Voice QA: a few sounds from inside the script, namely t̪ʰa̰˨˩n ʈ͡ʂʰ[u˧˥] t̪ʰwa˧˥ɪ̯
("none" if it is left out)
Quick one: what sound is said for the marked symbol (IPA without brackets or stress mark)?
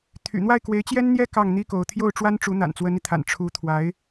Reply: u˧˥